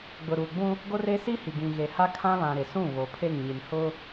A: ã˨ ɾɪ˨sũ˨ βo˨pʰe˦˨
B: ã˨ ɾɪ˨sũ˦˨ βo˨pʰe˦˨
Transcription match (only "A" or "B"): B